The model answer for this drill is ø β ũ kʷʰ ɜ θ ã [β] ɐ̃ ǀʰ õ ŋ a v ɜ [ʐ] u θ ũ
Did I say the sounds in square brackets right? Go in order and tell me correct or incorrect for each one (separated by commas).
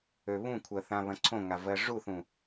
correct, correct